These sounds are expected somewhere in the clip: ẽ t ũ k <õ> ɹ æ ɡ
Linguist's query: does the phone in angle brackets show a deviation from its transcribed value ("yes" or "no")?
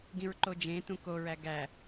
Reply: yes